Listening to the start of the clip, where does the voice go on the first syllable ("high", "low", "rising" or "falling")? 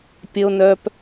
low